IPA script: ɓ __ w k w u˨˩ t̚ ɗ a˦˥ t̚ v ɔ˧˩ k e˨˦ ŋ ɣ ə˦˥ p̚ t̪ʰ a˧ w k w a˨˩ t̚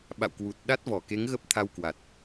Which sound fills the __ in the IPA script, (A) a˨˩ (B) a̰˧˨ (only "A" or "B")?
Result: B